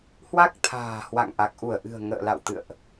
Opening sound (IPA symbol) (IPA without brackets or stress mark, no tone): h